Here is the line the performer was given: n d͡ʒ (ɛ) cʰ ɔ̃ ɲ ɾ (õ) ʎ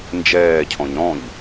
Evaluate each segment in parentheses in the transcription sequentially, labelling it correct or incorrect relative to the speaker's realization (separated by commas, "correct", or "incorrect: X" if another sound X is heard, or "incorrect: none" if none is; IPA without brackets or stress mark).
incorrect: ɛː, incorrect: ɔ̃